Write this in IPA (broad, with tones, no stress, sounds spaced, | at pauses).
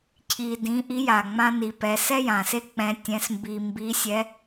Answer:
cʰ i˧ d ĩ˧˥ ʔ i˧˥ j a˩ ŋ͡m ã˥ n i˧ p ɛ˧ s ɛ˥ j ã˩ s e˥ k͡p ɛ̃˧˥ tʲ ɛ̃˧˥ s m b i˧ m b i˧˥ sʲ ɛ˧˥